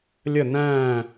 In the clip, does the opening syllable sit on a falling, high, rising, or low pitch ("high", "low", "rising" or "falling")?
falling